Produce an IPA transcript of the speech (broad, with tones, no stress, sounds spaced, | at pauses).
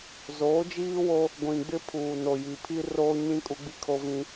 z oː˨˦ d͡ʒ iː˦ w o˦ | ɡʷ ĩ˨ ɡ͡b ɪ˦ pʰ uː˨ n o˨ j i˨ pʰ i˦ r oː˦ ɲ ĩ˦ kʼ u˦ ɡ͡b i˦ kʰ o˦ v ĩ˦